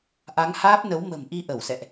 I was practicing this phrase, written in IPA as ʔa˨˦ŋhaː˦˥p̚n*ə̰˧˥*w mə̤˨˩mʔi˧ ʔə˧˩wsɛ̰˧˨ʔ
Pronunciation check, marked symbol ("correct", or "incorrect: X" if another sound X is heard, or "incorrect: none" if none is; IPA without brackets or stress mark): incorrect: ə˨˦